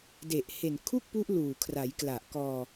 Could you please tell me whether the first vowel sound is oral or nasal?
oral